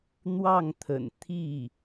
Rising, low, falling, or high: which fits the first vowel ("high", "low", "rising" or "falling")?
falling